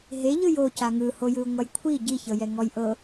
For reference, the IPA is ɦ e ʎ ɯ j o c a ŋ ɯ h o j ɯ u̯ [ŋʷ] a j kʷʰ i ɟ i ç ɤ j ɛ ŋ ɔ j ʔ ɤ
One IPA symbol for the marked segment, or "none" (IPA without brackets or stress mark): ŋʷ